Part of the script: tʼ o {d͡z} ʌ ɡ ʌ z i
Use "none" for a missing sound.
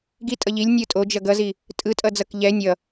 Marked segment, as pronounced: d͡ʒ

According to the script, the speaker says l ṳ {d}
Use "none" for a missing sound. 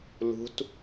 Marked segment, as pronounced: t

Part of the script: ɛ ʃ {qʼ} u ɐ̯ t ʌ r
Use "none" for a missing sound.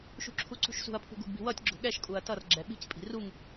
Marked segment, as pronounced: kʼ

